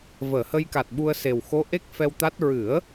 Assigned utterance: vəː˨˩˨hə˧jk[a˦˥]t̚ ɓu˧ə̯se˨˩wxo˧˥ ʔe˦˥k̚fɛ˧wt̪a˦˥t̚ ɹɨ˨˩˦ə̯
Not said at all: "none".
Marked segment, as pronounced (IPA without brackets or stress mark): a˨˩